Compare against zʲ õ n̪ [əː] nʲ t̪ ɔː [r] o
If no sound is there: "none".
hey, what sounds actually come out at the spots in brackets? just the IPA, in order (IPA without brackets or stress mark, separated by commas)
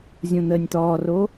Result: əː, r